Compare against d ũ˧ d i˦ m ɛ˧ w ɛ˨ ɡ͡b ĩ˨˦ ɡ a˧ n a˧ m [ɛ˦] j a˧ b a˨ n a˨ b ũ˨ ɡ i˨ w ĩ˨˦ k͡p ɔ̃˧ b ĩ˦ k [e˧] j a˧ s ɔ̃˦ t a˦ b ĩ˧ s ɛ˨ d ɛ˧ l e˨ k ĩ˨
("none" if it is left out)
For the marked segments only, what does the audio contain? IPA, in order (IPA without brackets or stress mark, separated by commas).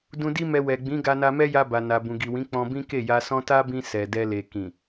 ɛ˦, e˦˨